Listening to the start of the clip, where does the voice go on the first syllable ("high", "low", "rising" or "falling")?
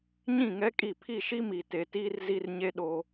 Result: falling